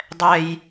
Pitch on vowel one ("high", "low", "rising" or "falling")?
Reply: high